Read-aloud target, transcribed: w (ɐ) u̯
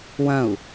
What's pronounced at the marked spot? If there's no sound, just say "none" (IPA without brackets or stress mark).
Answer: ɐ̃